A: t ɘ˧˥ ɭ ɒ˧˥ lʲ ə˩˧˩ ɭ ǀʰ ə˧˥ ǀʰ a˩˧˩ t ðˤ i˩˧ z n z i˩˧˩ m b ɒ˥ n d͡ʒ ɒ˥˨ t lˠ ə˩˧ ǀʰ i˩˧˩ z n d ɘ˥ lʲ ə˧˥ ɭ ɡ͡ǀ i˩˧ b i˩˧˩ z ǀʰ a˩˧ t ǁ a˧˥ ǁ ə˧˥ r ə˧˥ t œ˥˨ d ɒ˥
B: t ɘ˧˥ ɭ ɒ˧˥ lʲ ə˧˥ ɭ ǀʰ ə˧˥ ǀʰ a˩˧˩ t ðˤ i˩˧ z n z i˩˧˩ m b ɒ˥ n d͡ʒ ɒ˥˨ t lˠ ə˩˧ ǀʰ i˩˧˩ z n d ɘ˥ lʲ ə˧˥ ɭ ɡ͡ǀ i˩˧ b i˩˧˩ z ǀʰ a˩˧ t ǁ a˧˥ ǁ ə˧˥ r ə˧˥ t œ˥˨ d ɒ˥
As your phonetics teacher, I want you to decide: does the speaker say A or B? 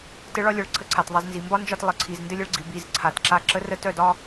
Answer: A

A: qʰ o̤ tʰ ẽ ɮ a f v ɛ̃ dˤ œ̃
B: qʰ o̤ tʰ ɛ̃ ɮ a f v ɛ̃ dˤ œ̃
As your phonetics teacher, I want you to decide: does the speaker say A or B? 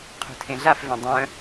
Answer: A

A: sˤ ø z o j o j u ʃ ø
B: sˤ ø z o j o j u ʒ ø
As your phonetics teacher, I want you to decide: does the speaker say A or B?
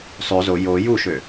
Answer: A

